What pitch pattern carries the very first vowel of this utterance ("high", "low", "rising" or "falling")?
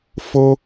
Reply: high